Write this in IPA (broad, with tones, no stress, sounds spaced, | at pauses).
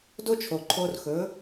d o˦ t͡ʃʰ o˨ ǃʰ o˧ r x ɵ˨˦